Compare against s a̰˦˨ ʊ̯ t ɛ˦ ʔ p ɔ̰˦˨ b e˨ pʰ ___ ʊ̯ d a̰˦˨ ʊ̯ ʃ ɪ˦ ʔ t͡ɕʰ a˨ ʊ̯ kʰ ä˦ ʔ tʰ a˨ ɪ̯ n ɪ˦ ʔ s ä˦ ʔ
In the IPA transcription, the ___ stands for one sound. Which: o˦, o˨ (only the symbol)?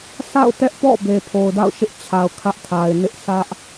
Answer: o˨